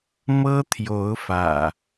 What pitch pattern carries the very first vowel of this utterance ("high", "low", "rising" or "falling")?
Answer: high